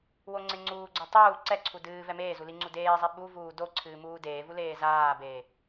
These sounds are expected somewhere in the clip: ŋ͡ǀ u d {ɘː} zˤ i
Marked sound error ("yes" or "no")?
yes